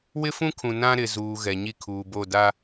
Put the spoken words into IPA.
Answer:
w ɪ˦ f ũ˦ kʰ ũ˨ n ã˦ ɾ ɪ˨ z uː˨ ɣ ɛ˨ ɲ i˦ kʰ uː˨ b o˦˨ d a˦

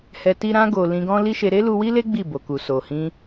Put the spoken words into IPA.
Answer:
h ɛ˧ t i˦ ɾ ã˧ ɡ o˨ l ĩ˧ ɡ ɔ̃˦ l i˦ ʃ e˧ ɾ e˦ l u˧ w i˦ l e˦ ɡ͡b i˦˨ b o˨ k u˨ s o˨ h ĩ˧

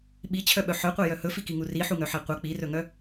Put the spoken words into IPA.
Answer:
ɓ i t͡ɕʰ œ ɓ œ ħ œ qʷ e j œ h ɵ f i k i ŋ u r i ħ u ŋ œ ħ e qʷ œ k͡p i r ɵ ŋ œ

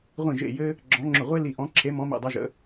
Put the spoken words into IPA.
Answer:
ʁʷ ĩ˦˨ ʒ ḛ˦˨ j ɘ˥ | ɡ͡ǁ ɔ̃˧˥ ŋ͡ǁ ʊ˦˨ ʁʷ e˥ l i˦˨ ʔ ɔ̃˧˥ ǁʰ e˧˥ m ɔ̃˧˥ m ḭ˦˨ dˤ œ˥ ʒ ə̰˧˥

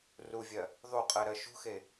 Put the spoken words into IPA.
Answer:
r u vʲ ɜ | ðˤ u qʼ ɜ ɾ ɜ ʃ ṳ x e

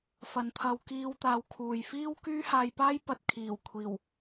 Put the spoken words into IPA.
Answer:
f ɐ˨˧ n t̪ʰ ɐ˧ w k iː˧ w t̪ aː˧ w kʰ uː˨ j f iː˥ w k yː˥ h aː˧ j p aː˥ j p ɐ˨ t̚ kʰ iː˨˩ w kʷʰ iː˨˩ w

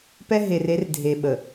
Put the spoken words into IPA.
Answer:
p ɛ˦ ɦ e˨ r e˨˦ r dʱ e˨ ɓ ə˨

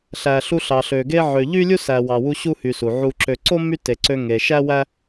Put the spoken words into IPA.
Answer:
ɬ æ˨ ɬ u˦ ɬ ɑ˨ ɬ ø˨ ɡ e˥ ʕ ø˨ ʎ y˥ lʲ u˥ s æ˨ w ɑ˨ w u˦ ɕ u˥ h y˨ s u˩ ʕ u˨ ǁ ø˨ ǀ o˥ m y˦ t e˨ ǀ ø˦ ŋ e˩ ʃ æ˥ w æ˥

